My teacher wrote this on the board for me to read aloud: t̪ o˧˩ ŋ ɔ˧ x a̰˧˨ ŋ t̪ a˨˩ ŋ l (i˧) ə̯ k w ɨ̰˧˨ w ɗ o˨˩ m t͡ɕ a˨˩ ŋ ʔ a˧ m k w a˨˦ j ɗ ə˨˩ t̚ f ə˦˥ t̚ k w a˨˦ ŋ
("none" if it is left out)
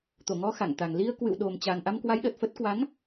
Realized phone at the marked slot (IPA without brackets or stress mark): i˧